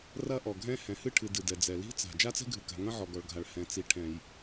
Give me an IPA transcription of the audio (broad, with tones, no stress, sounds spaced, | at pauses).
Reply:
r ɐ˥ ʔ ɔ˩ ɡʱ ɛ̃˥ h ɛ̃˩ h ɨ˥ ʈʰ ɨ˩ d ɨ˩ d ɛ˩ d͡z ɛ˩ l i̤˥ t͡s a̤˩ d͡ʒ a˥ t͡s ɛ̤˥ ɡʱ ɨ˩ k a̤˩ ŋ ɐ̃˥ ʕ ɔ˩ ɡ ɔ˩ ɭ ɡʱ a˩ ɭ h ɛ̃˩ t͡s i˩ ʈʰ ɛ̃˩ j